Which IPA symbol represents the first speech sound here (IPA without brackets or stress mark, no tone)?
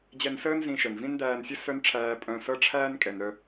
d͡ʑ